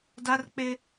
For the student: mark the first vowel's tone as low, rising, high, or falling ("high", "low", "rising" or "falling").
high